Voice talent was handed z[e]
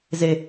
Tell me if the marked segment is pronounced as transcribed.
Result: yes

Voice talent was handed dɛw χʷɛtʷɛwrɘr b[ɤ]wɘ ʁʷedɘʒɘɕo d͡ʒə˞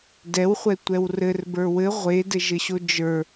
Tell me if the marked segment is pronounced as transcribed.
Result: no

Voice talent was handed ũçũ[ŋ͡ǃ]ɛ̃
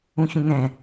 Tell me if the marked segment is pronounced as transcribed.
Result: no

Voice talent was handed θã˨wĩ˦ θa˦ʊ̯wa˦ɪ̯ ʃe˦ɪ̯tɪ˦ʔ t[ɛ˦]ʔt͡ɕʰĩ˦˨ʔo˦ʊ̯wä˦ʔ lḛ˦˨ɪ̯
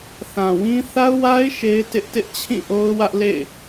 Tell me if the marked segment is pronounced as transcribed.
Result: no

